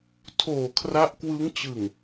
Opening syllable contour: low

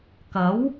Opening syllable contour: rising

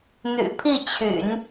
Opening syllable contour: low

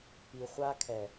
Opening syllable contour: low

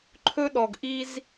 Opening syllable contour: high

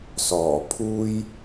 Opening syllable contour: low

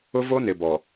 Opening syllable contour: high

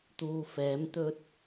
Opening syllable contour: low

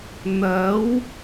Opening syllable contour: rising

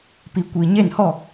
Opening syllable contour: low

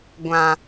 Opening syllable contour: low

